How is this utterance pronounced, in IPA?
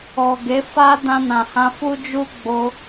ɔ˨ɡe˨˦fa˦ dã˧nã˨hã˧ fu˦d͡ʒu˦ ɡ͡bo˦

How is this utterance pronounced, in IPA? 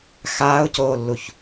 xaːʊ̯coːlːuç

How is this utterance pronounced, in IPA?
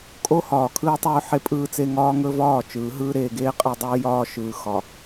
kʼo˦hɒː˨kʰɯː˦tˤɵː˦ ħe˦pʼɯː˦t͡se˦ ŋɒː˦ŋɵ˦vɒː˦˨ t͡ʃɯː˨˦ɦɯː˦ ɾeː˨ɡeː˦ qʼe˦dˤɯː˦ jɒː˦ʃɯː˨ xɒ˨

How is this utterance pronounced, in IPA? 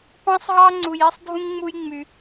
pɑ̃˦sˤɦɑ˦ ŋ͡ǀu˧ji˦sˤdʱũ˦ŋŋ͡mu˦j ŋ͡my˧

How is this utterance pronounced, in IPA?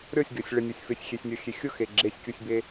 ɾʲɔsʲɡʲɔsʲ ɭɪnʲosʲ fɪsʲxʲesʲnʲɔxʲe xʲʊxe ɡ͡ǁesʲkʲusʲbe

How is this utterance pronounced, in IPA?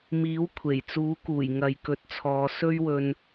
miː˨˥wkʷʰe˨˩jt͡suː˨˥kuː˨˩j ŋɐ˨jkɵ˨˥t̚t͡sʰɔː˨˧ sɵ˥ɥwɵ˧n

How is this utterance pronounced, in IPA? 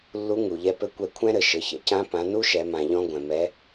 lːu˧˥ŋu˩ʎɛ˧pɘ˧˥ kʷɛ˧kʷʰɛ̃˥ɾɘ˩ ʃɘ˩˧çɛ̰˥cã˧˥ pã˩˧ nu˥ʃɛ˩˧mã˩ʎɔ̃˧ ɡʷɛ̃˩mɛ˩˧

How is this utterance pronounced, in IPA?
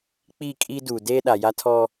k͡pi˦˨kʼi˦ duː˨deː˦ɗa˨ ja˦tʰɔ˦

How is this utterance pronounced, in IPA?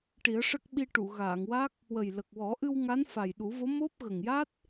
ʈi˨˩˦ə̯ʂə˦˥k̚ ɓi˧ ʈu˨˩˨ɣaː˨˩˨ŋwaː˦˥k̚ | wə˨˩jlə˨˩k̚wɔ˨˩˦ʔɨ˧w ŋa˧˥nfa˨˩jɗu˨˩˦vo˧˥ mo˦˥p̚ ɣə˨˩ŋja˦˥t̚

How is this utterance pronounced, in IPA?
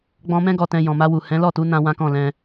ɡ͡bɔ̃˧mɛ̃˦ ɡɔ˧tɛ̃˧jɔ̃˨ ma˧wu˨ hɛ̃˨˦lɔ˦˨tu˨˦ nã˦wã˦kɔ̃˦˨lɛ̃˧

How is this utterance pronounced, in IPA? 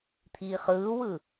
t̪ʰiːχɯːwɯ

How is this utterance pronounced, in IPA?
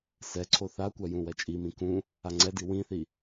sɛ ǀʰoθakʷa jũwɛt͡ʃʼimĩ kũ | aŋ͡ǀɛdi wĩθi

